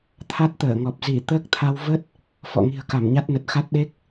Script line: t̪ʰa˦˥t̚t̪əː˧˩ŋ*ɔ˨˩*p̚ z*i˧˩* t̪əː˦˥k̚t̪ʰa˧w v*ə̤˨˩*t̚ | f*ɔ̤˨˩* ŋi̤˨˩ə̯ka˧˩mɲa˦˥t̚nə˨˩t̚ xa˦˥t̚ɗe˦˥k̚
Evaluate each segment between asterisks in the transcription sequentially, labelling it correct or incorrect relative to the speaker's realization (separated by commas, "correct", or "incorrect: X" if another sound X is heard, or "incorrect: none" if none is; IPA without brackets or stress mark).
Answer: correct, correct, incorrect: ə˦˥, incorrect: ɔ̰˧˨